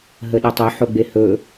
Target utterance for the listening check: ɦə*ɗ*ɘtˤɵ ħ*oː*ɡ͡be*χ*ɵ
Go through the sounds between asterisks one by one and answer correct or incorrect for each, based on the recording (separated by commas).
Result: correct, incorrect, incorrect